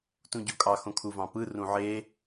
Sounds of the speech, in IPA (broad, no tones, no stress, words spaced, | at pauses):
tũɟokʼɑ xõkʰuvɑ̃pɯ rũʕe